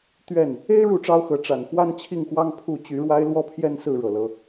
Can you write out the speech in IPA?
t̪ ɥ ɛ˥˨ n | e˦ ɪ̯ ɻ u˥˨ ʈ͡ʂ ɑ˦ ʊ̯ x ɤ˨˦ ʈ͡ʂ a˨˩ n f w a˦ n t͡ɕʰ i˥˨ ŋ x w ɑ˦ ŋ pʰ u˥˨ t͡ɕ y˨˦ ɻ w a˦ ɪ̯ l w ɔ˥˨ pʰ j ɛ˦ n s ɹ̩˥˨ ɻ ɤ˨˩ l ɤ˨˦

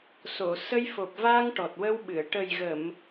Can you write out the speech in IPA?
s o˨˩˨ s ə˧ j f o˨˩ p̚ v a˧ ŋ ʈ ɔ˨˩ t̚ w ə˧ w ɓ ɨ˨˩˨ ə̯ ʈ ə˨˩ j ɣ ə˨˩˨ m

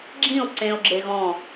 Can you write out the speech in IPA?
ɡ͡ǁ ĩ˥˩ o̯ ǀ ẽ˧ o̯ ɡ͡ǁ e˧ ɣ ɔ̃˧˩

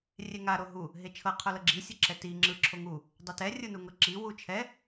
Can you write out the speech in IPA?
rʲ e ŋ a ɾ o ɦ u | ɦ e t͡ʃʰ ɤ qʰ o l ɤ ɡ͡ǁ i sʲ ɯ ǁ ɛ t i ŋ͡ǁ ɯ ǁʰ o ŋ u | dˤ e t ɛ rʲ ɯ n u ŋ ɤ ǁ i w u t͡ʃʰ ɛ

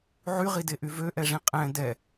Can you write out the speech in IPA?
ʕ y ʁ i d e ʔ y v ø ʔ ɛ ʐ ĩ qʼ ɛ̃ d ɛ

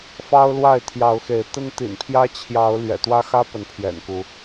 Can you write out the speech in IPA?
f ɑ˦ ʊ̯ l w a˥˨ ɪ̯ t̪ʰ j ɑ˨˦ ʊ̯ x e˨˦ ɪ̯ t̪ ə˦ n t̪ ḭ˨˩ n pʰ j ä˦ t͡ɕʰ j ɑ˨˦ ʊ̯ l ɥ ɛ̰˨˩ t̪ w ä˦ x ä˦ p ə˨˦ n pʰ j ɛ̰˨˩ n k u˨˦

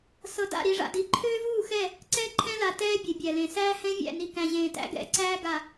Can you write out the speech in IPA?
s ɤ˨ d a̰˦˨ ɾ i˨ ʐ a̰˨ d i˨ ǃʰ øː˦ v uː˦˨ x ɛ˦˨ | ǀ ɛ˦ ǃʰ ɛ̃˦ l a˨ t ɛː˦ bʲ ɛ˨ bʲ æ˨ l ẽ˨ s æː˦ h ɛ̃˦ vʲ æ̰˦˨ n i˨ k æ̃˨ ʑ ẽː˨ t æ̰˦ ɡ ɛ̰˨˦ ǀ æː˦ ɡ a˨

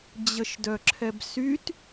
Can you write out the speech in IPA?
d͡ʑ ə ʃ d œ ǁʰ ɛ b s y t

